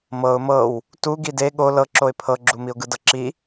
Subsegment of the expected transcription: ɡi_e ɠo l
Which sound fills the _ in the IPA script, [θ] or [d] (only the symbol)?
d